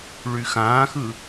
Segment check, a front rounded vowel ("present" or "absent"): present